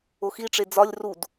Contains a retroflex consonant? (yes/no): yes